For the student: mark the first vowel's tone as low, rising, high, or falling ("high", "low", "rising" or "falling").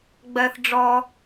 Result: low